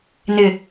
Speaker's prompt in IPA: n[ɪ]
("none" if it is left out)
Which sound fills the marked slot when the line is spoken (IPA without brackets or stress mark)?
ɪ